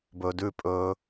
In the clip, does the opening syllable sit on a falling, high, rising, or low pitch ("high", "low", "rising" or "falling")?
low